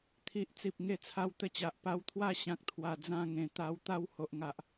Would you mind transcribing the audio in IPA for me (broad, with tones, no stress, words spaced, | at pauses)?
t̪ʰi˨ʔt͡si˨p̚ ŋe˥˧t͡sʰa˦w t̪ə˥˧t͡ɕa˨ʔ pa˧wt̪ʰwa˥˧ ɕã˦k̚t̪ʰwa˨˩ d͡zã˥˧ŋẽ˨˩ t̪a˧wt̪a˥˧w ho˨ʔŋa˨ʔ